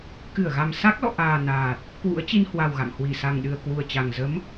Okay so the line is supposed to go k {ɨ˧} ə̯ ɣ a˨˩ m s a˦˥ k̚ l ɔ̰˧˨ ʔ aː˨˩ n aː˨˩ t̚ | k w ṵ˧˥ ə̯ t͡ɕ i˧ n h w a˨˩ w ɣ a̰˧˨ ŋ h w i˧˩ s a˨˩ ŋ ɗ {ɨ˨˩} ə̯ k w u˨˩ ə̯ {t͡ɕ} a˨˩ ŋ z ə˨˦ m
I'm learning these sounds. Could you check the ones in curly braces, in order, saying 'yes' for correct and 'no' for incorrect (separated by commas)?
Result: no, yes, yes